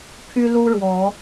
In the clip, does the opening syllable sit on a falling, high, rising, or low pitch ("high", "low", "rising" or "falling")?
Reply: high